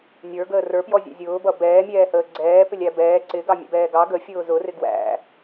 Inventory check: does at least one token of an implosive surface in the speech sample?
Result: no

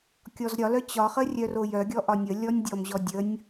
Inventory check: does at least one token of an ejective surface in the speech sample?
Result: no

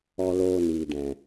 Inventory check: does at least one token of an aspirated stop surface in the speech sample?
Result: no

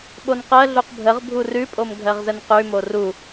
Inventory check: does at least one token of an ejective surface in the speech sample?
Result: yes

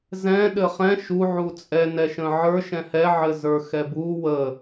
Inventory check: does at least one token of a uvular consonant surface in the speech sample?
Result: yes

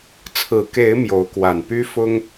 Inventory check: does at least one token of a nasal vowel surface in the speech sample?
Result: no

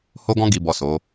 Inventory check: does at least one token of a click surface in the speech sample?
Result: no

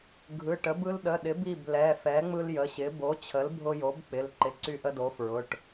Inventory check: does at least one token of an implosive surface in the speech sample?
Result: yes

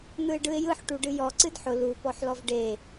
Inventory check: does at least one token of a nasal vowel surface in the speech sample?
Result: no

